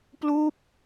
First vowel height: high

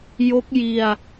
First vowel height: mid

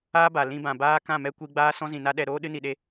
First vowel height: low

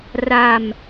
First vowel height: low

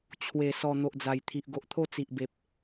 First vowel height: mid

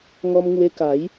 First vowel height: mid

